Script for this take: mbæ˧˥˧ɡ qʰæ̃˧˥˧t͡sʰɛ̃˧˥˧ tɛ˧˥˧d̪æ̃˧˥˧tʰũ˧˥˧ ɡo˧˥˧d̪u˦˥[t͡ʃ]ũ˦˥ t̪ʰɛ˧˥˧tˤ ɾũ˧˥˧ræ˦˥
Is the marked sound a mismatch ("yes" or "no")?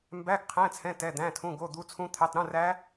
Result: yes